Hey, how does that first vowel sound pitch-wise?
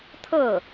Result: falling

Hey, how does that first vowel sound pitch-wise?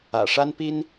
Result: low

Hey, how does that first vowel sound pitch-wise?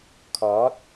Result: rising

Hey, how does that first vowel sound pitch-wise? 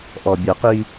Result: low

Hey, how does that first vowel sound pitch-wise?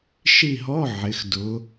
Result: falling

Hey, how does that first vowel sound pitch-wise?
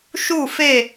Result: falling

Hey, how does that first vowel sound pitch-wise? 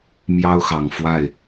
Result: high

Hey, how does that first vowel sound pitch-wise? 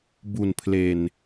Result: low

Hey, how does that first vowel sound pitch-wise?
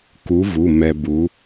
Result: rising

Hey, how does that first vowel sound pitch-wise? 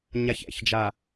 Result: low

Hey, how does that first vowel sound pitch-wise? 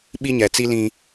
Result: high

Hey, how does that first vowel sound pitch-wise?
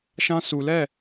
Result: high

